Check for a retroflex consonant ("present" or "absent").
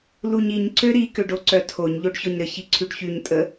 present